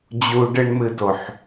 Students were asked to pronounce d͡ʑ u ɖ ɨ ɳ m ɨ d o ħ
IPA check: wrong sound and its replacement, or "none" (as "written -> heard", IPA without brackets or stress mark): none